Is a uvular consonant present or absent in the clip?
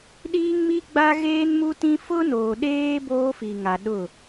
absent